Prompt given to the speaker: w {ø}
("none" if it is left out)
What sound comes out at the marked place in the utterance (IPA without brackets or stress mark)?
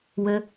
ø